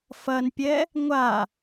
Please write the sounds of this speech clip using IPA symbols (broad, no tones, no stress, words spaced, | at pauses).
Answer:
fɐnpʲɛ | ŋʷa